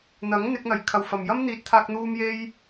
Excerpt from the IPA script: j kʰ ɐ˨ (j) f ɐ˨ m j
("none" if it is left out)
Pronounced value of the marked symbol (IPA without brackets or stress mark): w